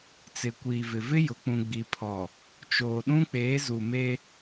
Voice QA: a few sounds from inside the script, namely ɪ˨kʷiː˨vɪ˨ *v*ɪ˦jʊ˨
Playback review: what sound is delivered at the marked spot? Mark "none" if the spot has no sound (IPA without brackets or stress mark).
v